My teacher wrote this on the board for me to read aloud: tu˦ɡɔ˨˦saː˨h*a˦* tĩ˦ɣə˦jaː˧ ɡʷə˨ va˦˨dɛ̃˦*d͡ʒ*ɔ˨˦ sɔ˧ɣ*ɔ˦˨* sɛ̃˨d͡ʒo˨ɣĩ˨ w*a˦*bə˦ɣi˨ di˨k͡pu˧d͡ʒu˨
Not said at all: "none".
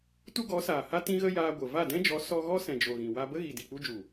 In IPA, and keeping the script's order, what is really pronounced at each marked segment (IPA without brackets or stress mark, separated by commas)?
a˦, d͡ʒ, ɔ˦, a˧